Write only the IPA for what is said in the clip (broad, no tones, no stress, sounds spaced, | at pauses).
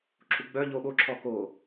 ǁʰ u ɡ͡b œ ʎ o ɓ o ǁʰ ɔ k o